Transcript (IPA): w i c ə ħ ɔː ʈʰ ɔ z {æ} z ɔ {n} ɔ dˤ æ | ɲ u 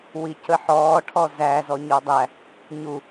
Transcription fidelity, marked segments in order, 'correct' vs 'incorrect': correct, incorrect: ɲ

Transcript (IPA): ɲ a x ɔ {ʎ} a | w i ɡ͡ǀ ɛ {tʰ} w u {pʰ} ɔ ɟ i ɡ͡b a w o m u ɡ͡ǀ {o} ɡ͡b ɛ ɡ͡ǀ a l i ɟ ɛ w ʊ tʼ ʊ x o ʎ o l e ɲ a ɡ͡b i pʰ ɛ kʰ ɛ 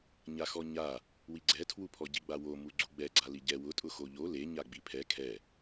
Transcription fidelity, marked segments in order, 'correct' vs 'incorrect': incorrect: ɲ, correct, correct, incorrect: u

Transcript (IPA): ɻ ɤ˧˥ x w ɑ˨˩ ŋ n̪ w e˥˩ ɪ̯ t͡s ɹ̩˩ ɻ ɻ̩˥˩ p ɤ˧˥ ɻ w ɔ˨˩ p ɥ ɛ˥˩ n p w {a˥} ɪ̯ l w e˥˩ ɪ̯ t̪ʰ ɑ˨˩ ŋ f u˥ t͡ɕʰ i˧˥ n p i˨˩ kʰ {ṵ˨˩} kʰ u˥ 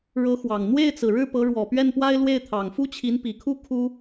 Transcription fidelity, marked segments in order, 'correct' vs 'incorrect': correct, incorrect: u˥˩

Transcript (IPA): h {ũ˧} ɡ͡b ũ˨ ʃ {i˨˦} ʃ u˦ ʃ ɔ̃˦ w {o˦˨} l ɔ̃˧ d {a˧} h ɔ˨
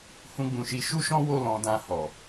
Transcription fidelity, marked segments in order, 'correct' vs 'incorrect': correct, correct, correct, incorrect: ã˧

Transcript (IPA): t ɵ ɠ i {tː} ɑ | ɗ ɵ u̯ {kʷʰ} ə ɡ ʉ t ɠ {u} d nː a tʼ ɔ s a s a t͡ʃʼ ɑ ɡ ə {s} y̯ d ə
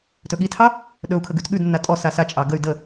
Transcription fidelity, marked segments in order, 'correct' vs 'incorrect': incorrect: tʰ, incorrect: kʰ, incorrect: ʉ, incorrect: none

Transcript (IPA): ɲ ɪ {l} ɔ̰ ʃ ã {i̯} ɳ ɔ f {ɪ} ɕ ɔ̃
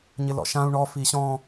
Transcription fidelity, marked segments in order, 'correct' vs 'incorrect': correct, incorrect: u̯, incorrect: i

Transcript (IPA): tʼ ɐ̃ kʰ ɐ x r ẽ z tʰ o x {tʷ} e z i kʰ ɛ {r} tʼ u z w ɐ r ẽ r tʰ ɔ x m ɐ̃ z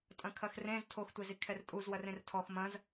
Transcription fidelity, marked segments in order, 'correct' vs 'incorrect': correct, correct

